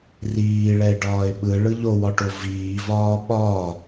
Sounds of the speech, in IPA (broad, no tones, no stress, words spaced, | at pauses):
riːɭɛɪ̯ɖɒːɪ̯ ɓɯɭɯ ʎowɒʈo viːvɒː ɓɒ